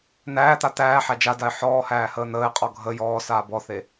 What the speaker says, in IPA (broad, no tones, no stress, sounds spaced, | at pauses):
n̪ æː t̪ a t̪ æː ħ æ d͡ʒ a d a ɪ̯ ħ ɔː h æː h əː n̪ əː ɪ̯ qʼ ɔ ɡʱ ə j ɔː s aː b ɔ θ e